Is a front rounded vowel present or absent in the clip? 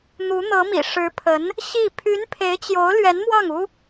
present